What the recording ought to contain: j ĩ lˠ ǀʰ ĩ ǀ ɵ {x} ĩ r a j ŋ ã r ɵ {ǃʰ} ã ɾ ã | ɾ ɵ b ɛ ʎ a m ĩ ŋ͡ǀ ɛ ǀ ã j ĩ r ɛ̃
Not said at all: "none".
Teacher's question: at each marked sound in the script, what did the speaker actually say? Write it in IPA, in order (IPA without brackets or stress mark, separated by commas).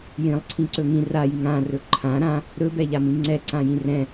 ŋ, ǃʰ